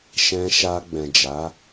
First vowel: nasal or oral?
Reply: nasal